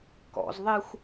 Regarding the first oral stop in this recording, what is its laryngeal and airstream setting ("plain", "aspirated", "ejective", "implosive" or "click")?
plain